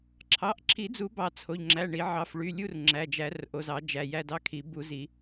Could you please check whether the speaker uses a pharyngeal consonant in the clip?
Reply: yes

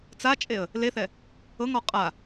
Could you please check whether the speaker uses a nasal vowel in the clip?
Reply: no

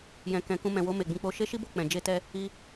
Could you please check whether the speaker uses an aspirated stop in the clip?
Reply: no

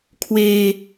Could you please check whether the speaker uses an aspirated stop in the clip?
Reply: yes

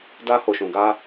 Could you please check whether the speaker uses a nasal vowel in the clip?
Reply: yes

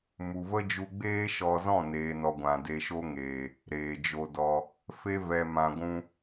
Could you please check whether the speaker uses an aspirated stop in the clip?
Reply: no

